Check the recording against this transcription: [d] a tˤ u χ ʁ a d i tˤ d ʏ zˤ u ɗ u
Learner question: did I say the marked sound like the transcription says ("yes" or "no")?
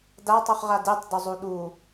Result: yes